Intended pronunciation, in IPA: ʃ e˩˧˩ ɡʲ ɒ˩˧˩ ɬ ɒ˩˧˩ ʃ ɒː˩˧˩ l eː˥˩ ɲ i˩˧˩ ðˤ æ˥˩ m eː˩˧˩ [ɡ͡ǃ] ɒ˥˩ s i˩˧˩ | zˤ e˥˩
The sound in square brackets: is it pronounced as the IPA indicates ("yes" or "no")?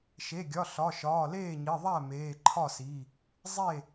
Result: no